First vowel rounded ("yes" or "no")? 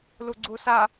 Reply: yes